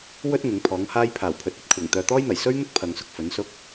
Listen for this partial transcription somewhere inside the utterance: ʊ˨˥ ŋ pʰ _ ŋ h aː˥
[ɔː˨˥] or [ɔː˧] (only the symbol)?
ɔː˨˥